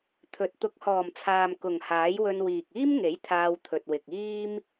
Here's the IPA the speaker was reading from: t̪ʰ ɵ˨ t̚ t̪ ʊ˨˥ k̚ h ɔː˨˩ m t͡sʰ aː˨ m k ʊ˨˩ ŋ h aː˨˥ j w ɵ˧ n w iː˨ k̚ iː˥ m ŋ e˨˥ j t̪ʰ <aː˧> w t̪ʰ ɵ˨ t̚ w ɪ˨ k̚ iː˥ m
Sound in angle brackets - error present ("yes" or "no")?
no